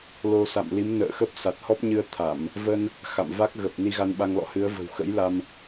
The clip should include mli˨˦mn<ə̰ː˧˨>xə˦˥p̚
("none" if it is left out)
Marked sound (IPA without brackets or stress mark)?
ə̰ː˧˨